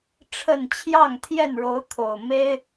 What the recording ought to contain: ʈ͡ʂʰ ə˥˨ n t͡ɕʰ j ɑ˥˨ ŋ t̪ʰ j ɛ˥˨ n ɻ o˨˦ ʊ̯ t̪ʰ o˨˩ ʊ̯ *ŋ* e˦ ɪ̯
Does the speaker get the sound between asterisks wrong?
yes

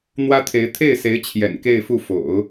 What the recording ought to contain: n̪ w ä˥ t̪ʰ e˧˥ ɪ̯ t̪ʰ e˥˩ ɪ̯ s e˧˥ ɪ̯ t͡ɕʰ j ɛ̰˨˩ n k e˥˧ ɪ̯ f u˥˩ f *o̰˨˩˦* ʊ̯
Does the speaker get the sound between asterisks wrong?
no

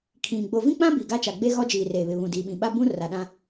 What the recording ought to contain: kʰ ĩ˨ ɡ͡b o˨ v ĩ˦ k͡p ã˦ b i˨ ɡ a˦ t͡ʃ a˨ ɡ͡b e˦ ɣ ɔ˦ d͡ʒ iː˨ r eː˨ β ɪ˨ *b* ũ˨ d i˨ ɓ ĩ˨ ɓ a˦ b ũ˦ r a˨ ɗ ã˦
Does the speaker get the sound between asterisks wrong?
yes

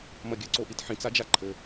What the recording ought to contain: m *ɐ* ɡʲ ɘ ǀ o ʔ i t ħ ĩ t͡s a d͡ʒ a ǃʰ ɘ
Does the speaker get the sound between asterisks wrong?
no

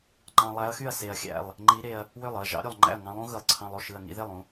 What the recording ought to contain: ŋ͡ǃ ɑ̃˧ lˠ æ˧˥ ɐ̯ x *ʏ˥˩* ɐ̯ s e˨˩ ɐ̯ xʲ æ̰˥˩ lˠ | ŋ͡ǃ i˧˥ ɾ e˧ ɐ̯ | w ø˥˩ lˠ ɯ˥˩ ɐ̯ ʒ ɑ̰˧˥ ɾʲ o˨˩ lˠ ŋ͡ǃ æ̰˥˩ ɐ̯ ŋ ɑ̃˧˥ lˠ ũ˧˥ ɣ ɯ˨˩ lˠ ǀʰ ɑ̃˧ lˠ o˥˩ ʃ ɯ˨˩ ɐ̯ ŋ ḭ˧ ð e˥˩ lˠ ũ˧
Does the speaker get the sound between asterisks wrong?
yes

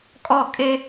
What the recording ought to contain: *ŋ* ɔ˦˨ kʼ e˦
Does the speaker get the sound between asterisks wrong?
yes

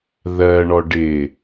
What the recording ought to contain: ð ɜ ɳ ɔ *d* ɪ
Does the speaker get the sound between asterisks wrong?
yes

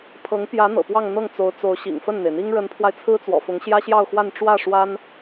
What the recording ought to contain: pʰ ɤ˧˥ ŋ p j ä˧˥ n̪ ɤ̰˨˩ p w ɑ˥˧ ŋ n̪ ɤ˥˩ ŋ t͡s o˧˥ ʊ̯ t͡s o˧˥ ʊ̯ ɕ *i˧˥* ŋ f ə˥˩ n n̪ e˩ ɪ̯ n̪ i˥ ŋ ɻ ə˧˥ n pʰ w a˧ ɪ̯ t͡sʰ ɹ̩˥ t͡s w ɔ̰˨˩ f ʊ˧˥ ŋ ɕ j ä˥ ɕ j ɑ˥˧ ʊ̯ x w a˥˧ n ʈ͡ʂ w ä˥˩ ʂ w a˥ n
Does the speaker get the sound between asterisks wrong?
yes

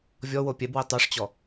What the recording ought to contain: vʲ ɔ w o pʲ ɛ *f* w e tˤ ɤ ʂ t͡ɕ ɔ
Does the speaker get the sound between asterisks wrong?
yes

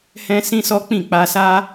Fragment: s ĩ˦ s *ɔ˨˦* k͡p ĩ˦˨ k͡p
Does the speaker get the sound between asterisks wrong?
yes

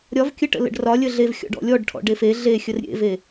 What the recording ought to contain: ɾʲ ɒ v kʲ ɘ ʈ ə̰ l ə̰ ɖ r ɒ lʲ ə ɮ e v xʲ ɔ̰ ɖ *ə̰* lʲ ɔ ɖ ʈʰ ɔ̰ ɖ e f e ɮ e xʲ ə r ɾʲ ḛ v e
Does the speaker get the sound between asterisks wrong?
yes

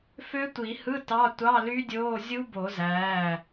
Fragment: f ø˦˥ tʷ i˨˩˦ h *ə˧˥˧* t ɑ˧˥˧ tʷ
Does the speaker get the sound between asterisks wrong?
yes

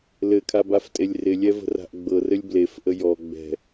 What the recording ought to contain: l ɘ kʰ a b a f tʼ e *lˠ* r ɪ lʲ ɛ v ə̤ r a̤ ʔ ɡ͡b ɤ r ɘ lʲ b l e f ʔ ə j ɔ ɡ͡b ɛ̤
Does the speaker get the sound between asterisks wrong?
yes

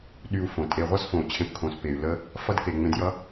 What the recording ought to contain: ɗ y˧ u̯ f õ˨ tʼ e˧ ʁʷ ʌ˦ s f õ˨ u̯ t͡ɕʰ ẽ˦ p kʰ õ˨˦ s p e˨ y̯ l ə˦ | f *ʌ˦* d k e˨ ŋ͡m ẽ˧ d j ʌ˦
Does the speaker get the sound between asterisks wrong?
no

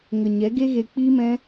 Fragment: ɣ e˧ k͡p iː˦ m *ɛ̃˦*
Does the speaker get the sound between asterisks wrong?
no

